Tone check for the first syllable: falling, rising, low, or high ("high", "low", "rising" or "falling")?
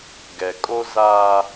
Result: low